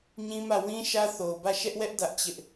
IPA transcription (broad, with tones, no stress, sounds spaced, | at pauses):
ɲ ĩ˦ m ä˦˨ w ĩ˦ ʃ ä˦ θ o˨ ʊ̯ b ä˦˨ ʃ ɛ˦ ʔ w ɛ˦ ʔ d ä˦ ʔ t͡ɕ ɪ˦ ʔ